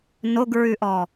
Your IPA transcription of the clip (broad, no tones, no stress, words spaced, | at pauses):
noɡɹʉʔɔ